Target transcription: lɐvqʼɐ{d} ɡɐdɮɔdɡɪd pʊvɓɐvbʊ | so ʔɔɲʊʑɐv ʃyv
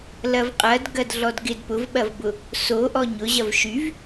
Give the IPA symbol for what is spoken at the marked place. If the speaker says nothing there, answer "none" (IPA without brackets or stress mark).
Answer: d